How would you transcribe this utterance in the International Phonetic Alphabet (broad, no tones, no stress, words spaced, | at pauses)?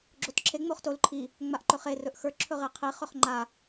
ɡ͡ǁotǁʰe ŋ͡moχtol ǃʰi | ŋ͡maʔǃɵχe rɵʔxə˞ ǁʰɵʁeqʰi χɵχŋ͡ǃa